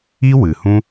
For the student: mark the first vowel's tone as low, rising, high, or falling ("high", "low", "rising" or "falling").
high